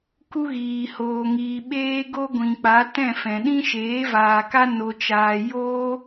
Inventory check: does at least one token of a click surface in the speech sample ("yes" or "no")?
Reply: no